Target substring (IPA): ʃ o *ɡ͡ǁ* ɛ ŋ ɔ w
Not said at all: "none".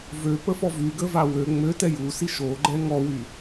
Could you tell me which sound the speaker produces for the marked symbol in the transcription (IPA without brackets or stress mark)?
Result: ɡ͡ǃ